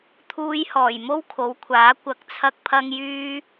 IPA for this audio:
t̪ʰuː˧jhɔː˨˩j mo˥wkʰo˨˧wkʷʰaː˨˥ kʷɐ˨˥k̚t͡sʰɐ˧k̚pʰɐ˧ŋjyː˧

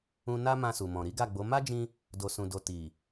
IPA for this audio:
ũ˧ na˦ mã˧su˨mɔ̃˨ ɾi˨˦ɡa˦˨ɡ͡bo˨˦ ma˦d͡ʒĩ˧ | do˨sũ˨do˨ ti˨

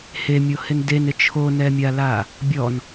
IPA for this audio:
hemʲohɪn denɪ t͡ʃʰonɛmʲala | bʲɔn

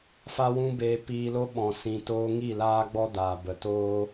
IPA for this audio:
fa˦wũ˦beː˧ piː˧lo˦ ɓɔ̃˨ sĩ˨ toː˧ ŋi˦˨laː˦ɡ͡bɔ˦daː˨ bə˨ toː˦

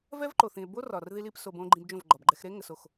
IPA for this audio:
vɛ˦v ǃo˨θĩ˨e̯ bo˦rɒ˨r ði˧li˧p so˧b õ˧ ɡ͡ǃĩ˧bd͡ʒõ˦˨vɡ͡ǃɒ˨bɡ͡ǃɛ˧x ɾe˦ŋə˨so˨x

